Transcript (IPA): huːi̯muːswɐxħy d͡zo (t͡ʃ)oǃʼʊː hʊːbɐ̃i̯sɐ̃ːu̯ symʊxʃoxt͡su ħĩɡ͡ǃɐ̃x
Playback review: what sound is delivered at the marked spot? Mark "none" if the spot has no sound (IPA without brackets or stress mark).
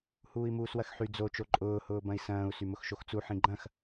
t͡ʃ